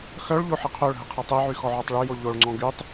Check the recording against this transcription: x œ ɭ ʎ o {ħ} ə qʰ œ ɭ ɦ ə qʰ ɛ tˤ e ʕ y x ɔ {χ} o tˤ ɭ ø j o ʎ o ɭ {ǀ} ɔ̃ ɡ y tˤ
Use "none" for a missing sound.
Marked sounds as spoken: ħ, ʕ, ŋ͡ǀ

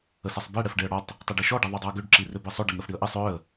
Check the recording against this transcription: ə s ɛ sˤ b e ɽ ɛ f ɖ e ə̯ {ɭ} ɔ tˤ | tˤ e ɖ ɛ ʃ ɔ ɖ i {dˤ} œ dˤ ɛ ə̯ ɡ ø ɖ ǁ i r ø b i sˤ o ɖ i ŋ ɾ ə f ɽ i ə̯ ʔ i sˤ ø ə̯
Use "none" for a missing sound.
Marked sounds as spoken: ɽ, ðˤ

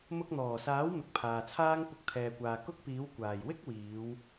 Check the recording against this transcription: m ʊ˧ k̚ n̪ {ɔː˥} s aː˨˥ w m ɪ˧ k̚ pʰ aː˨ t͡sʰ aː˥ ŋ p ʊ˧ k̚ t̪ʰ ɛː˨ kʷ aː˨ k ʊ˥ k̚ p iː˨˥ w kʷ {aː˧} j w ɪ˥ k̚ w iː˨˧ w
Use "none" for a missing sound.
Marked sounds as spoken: ɔː˨˩, aː˨˩

